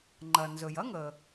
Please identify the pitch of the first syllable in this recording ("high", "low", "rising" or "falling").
low